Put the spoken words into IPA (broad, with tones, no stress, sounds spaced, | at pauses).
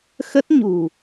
x ə˦˥ t̚ ɲ ṳ˨˩